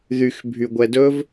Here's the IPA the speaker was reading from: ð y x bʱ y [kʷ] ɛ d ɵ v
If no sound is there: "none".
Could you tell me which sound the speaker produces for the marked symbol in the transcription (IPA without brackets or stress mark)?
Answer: ɡʷ